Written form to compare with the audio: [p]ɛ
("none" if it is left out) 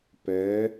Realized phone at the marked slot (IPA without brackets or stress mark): p